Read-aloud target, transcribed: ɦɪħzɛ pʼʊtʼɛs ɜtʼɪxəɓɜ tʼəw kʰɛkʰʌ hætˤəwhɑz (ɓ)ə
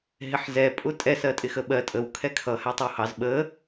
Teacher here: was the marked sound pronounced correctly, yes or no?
yes